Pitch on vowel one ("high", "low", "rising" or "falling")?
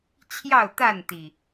falling